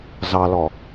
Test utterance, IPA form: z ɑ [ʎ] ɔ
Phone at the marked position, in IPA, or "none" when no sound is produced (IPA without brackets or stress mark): l